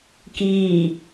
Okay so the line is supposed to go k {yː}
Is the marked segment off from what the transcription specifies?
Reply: yes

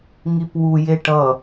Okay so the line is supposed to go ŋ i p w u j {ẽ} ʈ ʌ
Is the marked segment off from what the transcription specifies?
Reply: yes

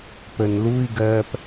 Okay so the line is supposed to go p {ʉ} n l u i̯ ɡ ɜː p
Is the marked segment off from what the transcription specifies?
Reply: yes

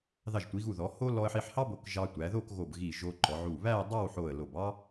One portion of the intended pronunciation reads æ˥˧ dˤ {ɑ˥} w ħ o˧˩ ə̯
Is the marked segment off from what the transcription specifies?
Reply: yes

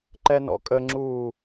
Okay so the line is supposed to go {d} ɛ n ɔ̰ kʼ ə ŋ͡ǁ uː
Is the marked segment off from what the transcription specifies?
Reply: yes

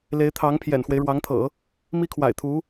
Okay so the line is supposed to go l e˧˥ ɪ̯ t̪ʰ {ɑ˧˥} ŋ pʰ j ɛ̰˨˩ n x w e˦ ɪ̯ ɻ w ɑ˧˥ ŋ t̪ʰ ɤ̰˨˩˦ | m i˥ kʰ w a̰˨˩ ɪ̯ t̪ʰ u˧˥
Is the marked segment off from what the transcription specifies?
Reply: no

